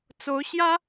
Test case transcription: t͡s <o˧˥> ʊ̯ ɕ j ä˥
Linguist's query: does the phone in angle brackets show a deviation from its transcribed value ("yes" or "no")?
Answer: no